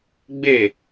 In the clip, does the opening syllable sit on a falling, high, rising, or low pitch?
falling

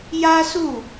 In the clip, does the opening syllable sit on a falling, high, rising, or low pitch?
high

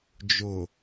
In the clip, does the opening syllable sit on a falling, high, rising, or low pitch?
low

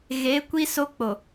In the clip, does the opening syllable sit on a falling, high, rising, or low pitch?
rising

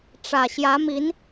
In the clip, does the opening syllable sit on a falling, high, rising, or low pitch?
low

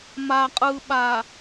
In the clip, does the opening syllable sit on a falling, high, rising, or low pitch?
low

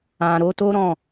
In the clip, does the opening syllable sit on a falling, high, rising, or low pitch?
low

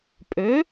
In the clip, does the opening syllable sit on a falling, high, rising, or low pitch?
rising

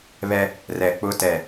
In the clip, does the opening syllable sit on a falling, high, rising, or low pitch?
high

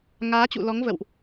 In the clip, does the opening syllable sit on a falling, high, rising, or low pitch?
rising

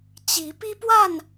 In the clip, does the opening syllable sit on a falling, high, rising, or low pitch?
rising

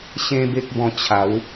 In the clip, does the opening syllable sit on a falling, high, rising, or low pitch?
high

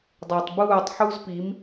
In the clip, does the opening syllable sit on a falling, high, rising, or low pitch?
low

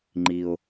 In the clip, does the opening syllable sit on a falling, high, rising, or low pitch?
high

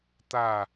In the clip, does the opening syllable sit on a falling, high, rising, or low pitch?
falling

